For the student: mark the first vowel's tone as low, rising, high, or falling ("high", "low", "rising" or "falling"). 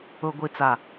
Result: low